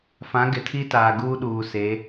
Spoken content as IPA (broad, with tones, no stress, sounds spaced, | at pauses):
f ã˨˦ ɡ ɪ˨ tʰ i˦ t aː˨ ɡ uː˦ ɗ uː˨ s e˨˦